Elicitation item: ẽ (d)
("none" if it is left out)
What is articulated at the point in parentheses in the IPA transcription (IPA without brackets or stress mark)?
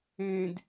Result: d